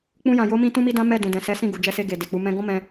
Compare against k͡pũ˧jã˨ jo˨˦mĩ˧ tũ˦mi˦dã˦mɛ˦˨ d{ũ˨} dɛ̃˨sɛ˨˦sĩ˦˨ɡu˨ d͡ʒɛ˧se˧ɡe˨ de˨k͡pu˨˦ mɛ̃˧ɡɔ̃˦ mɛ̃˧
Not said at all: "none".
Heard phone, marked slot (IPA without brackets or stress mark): ũ˨